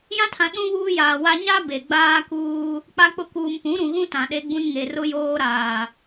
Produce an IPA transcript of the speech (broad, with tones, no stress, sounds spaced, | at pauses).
j ã˦ tʰ ã˨ ɗ ũ˦ β uː˦ j aː˨ w a˦ ɲ a˦ b e˨ ɡ͡b aː˦ k uː˦ | k͡p a˦ k͡p ʊ˦ k uː˨ m p ũ˨˦ ɾ ũ˨ ɣ ũ˦ t ã˨ ɗ e˦ ɡ͡b ũ˦ n ŋ e˨ r ʊ˦ j oː˦ ɾ aː˨